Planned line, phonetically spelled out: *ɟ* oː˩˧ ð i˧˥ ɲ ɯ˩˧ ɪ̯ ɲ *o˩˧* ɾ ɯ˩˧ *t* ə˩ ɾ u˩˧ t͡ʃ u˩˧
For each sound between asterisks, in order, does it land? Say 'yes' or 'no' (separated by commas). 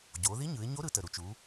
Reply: yes, no, yes